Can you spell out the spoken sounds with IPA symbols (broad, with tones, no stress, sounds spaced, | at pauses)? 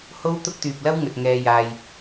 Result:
h o˥ w t̪ ʊ˥ k̚ t̪ yː˧ p̚ l ɐ˥ w ŋ ɵ˧ t̚ ŋ ɛː˧ j aː˧ j